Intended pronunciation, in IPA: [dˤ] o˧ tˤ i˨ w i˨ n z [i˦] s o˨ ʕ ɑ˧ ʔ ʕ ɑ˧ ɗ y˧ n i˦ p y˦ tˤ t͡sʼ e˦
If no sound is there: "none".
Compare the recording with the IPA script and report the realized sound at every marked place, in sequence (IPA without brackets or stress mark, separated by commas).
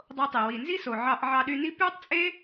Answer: dˤ, i˦